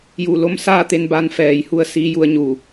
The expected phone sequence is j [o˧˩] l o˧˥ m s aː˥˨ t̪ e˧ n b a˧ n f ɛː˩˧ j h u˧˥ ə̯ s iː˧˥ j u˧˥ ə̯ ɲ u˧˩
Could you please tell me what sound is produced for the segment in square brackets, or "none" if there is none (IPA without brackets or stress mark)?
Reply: u˧˩